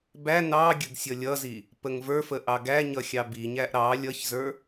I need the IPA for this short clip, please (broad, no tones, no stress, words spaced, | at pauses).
bæ nɑɡʲəɡ sʲʌlʲʌzi | pəŋvə˞fə ʔɑɡæɲʌ xʲɑbiɲæʔ ɾɑ lʲʌçzə˞